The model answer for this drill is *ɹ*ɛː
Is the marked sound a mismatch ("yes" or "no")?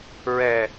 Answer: no